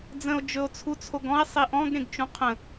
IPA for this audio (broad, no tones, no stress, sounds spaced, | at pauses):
d͡z ə̃ o̯ d͡ʒ ɵ o̯ t͡sʰ u t͡sʰ o ɡ ɔ̃ e̯ sˤ i ʔ ɔ̃ ɡ ɾ ẽ ɡ t͡ʃ ũ qʰ ə̃